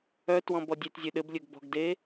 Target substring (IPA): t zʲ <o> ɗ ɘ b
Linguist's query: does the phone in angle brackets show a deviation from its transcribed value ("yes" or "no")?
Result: yes